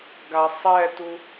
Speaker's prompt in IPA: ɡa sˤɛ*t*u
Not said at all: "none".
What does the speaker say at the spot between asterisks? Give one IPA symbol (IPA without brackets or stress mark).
t